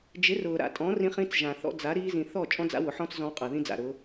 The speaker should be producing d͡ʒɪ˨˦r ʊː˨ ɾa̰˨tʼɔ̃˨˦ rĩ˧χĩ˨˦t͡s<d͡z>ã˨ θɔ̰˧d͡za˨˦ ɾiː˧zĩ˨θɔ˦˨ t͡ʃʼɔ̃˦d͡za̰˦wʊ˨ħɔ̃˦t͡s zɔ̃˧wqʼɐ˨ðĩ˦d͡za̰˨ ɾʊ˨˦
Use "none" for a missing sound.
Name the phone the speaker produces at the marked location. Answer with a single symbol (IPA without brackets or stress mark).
ʒ